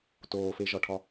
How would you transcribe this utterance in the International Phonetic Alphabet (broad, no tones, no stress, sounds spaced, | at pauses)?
t oː f e ʒ ɒ ʈʰ ɒ